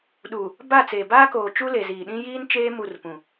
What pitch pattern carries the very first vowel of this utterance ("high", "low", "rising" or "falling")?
low